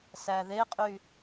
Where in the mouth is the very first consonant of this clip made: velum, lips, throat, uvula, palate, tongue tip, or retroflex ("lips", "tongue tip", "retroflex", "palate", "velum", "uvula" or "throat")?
tongue tip